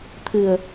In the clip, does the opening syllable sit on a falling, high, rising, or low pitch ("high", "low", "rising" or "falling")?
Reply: low